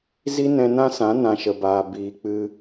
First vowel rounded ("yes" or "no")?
no